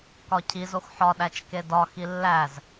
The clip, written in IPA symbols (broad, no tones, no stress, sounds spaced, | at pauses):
k ɒ cʰ i z o x ħ ɒ ɗ æ t͡ʃ k e d ɒ x i lː æ z